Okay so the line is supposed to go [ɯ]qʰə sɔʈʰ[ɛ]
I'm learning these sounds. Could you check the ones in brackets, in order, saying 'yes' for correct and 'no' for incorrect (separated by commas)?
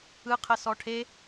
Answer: yes, no